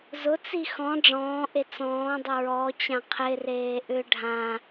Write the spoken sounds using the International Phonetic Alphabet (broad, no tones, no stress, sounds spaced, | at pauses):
z ʊ t͡s i x ɔ̃ ɖ͡ʐ ɔ̃ː ʔ e t͡s ɔ̃ː dˤ ʊ ɹ ɔ t͡ɕ ã qʰ ɪ r eː ʔ ʏ ɖʱ ã